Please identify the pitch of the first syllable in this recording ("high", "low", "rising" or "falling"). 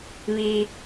low